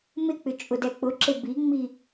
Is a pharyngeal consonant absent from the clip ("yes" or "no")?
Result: yes